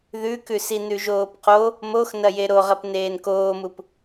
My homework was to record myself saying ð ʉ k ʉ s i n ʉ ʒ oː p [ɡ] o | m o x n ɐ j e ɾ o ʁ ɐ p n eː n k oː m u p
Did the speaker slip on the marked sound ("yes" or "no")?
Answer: yes